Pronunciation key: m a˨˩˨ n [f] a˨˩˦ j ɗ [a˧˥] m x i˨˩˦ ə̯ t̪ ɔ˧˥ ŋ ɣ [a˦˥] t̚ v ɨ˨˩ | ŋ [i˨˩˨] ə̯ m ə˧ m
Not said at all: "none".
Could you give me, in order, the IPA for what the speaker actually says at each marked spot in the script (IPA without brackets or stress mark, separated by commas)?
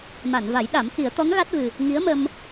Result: v, a˨˩˦, a˦˥, i˧˥